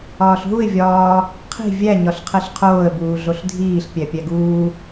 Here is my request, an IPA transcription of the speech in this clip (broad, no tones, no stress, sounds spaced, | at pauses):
ɒː ɬ ɦ u ɪ̯ vʲ ɒː | qʰ i̤ vʲ æ ɲ ɒ ɬ qʰ e ɬ qʰ oː ə̯ b uː ɮ o ɬ dʱ iː ɬ pʲ æ pʲ æ ɡ uː